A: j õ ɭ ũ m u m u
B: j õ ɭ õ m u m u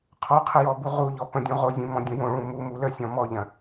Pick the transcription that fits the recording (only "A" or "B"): A